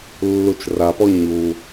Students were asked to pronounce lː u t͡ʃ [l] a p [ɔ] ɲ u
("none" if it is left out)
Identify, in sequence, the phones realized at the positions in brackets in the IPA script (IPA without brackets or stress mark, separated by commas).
r, ɔ